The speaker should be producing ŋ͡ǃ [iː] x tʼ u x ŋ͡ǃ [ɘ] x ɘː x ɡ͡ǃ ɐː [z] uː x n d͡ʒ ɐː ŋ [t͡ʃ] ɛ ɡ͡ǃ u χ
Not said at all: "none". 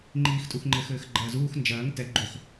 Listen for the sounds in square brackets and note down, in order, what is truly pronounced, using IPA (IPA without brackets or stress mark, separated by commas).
iː, ɘ, z, t